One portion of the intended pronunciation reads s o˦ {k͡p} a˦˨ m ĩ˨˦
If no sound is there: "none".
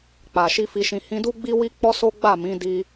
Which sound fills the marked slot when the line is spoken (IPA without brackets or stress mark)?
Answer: ɡ͡b